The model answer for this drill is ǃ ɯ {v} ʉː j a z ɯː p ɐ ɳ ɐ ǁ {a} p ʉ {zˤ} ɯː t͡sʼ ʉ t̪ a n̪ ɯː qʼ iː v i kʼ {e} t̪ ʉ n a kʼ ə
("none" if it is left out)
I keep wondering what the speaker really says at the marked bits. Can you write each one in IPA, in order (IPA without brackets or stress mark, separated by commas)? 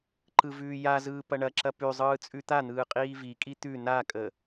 v, ɐ, zˤ, i